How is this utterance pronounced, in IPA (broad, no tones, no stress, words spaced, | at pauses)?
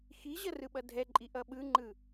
xiʑʌrɯɓʌ dʱɛǃʼi ʔʌɓɯŋ͡ǃɯ